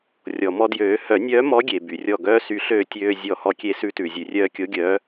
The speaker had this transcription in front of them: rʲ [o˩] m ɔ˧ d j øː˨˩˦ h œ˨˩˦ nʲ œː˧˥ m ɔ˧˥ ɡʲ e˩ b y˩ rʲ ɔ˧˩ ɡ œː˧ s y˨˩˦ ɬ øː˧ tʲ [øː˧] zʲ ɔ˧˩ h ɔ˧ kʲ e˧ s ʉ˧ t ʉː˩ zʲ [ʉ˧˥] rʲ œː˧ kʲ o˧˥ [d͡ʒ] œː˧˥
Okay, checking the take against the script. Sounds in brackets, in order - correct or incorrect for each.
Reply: incorrect, correct, incorrect, incorrect

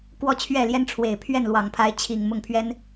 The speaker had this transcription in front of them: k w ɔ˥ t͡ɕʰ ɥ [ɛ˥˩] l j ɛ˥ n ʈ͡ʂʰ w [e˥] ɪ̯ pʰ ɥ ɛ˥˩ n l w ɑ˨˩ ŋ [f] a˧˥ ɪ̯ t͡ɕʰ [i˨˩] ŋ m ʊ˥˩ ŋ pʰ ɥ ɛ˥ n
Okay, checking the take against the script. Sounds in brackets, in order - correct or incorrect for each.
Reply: correct, incorrect, incorrect, correct

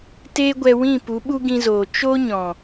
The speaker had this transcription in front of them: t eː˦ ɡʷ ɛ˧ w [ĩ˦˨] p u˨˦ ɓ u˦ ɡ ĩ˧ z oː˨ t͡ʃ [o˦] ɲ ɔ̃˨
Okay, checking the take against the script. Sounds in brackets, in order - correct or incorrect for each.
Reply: correct, correct

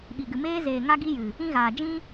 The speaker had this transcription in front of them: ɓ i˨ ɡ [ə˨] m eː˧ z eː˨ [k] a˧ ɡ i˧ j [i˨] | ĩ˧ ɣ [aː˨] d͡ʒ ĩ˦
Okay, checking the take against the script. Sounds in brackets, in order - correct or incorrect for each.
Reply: incorrect, incorrect, incorrect, correct

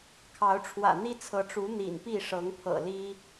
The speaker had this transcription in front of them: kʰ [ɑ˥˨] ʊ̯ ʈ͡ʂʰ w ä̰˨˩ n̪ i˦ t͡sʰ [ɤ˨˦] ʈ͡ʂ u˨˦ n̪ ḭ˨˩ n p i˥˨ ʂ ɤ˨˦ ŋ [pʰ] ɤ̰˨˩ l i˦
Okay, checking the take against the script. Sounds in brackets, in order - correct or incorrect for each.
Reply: incorrect, correct, correct

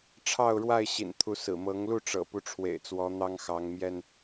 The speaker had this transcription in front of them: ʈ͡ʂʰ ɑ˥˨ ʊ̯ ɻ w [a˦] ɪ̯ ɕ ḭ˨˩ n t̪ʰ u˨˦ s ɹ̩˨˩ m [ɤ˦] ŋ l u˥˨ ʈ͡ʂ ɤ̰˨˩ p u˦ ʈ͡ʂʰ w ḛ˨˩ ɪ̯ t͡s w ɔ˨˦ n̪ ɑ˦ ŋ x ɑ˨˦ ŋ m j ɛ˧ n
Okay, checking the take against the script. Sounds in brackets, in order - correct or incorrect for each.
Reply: incorrect, incorrect

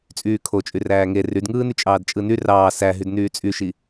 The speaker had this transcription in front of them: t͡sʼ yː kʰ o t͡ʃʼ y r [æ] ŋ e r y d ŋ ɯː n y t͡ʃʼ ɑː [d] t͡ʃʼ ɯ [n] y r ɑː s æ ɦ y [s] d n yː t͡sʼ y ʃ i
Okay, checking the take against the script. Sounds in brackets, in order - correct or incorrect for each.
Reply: incorrect, correct, correct, incorrect

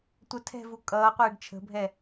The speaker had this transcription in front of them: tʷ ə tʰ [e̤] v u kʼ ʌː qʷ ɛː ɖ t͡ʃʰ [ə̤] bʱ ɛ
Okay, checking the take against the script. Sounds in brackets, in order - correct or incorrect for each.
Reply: incorrect, correct

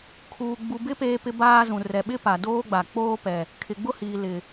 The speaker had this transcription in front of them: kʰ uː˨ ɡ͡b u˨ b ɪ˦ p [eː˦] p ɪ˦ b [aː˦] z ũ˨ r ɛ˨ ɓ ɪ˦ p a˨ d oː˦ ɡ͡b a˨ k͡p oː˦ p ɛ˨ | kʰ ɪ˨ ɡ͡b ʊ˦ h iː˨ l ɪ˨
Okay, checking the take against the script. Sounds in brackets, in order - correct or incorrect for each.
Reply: correct, correct

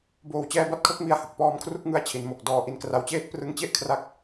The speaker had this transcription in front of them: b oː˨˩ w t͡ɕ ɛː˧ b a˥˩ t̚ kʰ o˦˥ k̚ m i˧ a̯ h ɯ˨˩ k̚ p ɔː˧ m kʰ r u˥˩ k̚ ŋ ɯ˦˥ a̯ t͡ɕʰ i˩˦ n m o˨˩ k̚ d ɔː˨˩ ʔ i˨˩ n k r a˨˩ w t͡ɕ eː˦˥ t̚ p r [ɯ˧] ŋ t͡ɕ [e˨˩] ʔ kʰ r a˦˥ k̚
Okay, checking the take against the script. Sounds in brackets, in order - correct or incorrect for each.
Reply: correct, incorrect

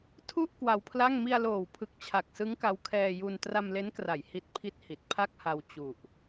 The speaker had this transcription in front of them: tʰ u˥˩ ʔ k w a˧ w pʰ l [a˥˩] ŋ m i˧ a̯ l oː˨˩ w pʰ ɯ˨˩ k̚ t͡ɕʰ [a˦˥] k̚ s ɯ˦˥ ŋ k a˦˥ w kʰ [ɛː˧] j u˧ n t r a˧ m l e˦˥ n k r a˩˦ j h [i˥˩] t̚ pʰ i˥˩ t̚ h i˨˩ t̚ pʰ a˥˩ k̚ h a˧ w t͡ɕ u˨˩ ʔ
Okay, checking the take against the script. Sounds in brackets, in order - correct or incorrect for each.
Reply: correct, incorrect, correct, incorrect

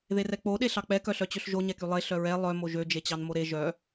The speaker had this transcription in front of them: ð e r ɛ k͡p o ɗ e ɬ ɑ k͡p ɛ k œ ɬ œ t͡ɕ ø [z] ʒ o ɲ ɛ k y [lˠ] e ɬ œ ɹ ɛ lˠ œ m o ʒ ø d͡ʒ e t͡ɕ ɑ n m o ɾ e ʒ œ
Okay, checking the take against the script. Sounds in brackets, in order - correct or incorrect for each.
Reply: incorrect, correct

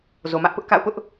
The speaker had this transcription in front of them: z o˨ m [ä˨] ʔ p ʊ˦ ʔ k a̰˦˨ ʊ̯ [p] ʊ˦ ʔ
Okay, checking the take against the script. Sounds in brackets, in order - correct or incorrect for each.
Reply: incorrect, correct

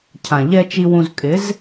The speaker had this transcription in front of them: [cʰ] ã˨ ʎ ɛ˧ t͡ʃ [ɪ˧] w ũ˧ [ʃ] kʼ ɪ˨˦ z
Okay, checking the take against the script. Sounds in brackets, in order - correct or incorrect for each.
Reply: correct, incorrect, incorrect

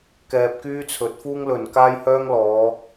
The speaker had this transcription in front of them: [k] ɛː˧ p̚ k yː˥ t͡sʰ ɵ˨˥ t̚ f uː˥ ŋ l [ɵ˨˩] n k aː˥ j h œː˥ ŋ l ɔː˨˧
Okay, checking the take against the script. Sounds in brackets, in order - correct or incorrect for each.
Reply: correct, correct

